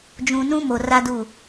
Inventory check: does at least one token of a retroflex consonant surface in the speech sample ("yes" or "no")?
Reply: no